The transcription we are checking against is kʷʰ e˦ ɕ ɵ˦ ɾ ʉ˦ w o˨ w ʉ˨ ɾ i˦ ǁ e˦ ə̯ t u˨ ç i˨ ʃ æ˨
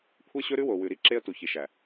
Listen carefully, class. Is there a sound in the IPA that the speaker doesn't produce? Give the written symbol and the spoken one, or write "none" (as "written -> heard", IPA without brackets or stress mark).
none